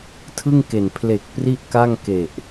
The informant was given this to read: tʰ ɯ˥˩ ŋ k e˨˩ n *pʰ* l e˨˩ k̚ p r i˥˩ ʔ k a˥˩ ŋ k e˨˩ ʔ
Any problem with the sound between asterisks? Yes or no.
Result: no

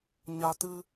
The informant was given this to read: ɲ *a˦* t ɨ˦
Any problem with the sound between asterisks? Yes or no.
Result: no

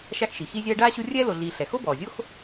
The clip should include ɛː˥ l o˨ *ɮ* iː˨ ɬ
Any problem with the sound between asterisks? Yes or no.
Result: no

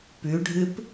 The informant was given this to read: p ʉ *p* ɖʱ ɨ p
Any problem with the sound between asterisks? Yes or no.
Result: yes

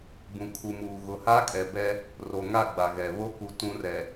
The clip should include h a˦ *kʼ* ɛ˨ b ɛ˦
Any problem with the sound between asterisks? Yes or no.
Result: no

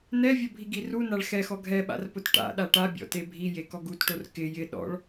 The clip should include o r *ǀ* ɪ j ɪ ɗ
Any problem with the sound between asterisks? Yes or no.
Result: yes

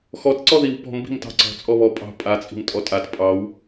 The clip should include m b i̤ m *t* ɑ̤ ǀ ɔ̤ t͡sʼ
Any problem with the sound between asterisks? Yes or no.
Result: no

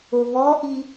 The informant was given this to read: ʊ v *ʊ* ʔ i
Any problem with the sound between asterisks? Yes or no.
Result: yes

